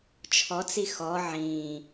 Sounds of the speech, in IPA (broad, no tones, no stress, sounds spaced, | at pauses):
t͡ʃʰ ɔ t͡s i x ɔ ʕ ĩː